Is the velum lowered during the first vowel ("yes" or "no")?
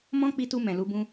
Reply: yes